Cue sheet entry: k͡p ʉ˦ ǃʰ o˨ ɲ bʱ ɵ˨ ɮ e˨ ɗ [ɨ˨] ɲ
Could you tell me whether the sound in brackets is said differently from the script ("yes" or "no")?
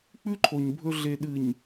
no